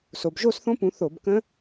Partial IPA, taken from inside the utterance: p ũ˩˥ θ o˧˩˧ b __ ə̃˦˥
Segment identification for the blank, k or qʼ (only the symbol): k